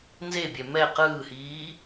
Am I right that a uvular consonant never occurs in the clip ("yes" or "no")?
no